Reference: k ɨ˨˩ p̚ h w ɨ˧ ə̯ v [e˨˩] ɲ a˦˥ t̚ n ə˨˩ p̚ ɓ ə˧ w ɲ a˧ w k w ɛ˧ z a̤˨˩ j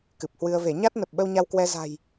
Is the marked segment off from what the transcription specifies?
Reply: yes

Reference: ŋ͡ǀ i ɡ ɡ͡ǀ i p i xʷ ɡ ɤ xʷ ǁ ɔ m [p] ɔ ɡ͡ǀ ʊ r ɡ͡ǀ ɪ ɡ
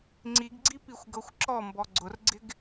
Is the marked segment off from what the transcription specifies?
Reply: yes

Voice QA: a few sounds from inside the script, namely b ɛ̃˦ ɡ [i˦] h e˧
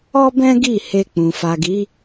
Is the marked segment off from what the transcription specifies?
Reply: yes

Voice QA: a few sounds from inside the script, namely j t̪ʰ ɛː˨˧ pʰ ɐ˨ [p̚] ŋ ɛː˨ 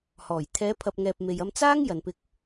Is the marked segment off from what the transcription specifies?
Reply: no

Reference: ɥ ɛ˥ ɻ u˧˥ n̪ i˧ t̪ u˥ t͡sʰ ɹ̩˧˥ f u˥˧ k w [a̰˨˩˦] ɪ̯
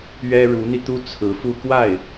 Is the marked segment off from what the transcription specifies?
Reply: yes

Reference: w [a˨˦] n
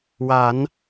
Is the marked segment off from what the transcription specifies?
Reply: no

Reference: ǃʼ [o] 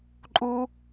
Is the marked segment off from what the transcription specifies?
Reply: yes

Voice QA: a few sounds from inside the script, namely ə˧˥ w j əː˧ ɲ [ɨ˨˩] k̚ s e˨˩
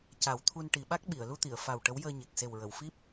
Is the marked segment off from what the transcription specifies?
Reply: yes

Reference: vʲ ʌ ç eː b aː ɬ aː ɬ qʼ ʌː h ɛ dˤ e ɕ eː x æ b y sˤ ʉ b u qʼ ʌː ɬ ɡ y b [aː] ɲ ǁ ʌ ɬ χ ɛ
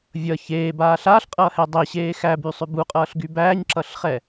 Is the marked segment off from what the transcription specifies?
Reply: yes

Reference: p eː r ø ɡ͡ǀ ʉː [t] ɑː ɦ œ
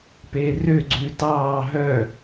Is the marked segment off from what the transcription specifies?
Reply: no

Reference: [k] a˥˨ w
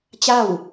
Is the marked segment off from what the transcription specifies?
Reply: yes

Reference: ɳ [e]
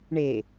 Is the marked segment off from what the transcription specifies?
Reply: no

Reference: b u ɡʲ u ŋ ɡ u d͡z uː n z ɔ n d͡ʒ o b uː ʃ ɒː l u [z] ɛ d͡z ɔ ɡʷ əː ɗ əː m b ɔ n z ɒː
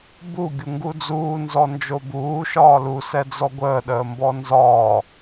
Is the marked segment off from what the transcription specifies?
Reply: yes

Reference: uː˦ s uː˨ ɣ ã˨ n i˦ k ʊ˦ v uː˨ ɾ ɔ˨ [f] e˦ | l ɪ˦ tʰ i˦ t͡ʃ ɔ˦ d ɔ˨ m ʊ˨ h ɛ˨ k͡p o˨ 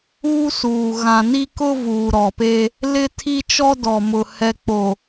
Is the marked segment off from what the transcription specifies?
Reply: yes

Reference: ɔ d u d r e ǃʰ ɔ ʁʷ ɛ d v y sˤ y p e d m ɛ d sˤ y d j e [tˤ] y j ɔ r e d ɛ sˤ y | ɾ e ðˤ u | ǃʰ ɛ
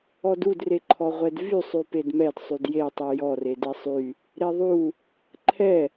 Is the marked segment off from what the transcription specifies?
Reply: no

